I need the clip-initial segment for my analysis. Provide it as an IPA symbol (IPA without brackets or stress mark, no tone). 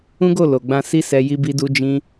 ũ